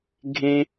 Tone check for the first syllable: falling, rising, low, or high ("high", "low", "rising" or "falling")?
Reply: low